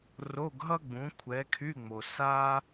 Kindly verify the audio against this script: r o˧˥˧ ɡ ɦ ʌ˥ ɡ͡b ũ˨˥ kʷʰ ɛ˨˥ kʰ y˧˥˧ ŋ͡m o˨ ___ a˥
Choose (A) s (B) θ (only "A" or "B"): A